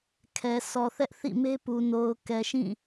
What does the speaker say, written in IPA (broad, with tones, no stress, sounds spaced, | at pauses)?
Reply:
kʰ ɛ˨ s ɔ˨ θ ɛ˦ ʔ θ ḭ˦˨ m e˦ p u˨ n o˨ ʊ̯ k ɛ˨ ʃ ĩ˦˨